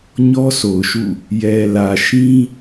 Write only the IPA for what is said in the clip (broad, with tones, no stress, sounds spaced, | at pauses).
ɲ ɔ˦ sʰ o˨ ʊ̯ ʃ ṵ˦˨ | j ɛ˨ l ä˨ ʃ ĩ˦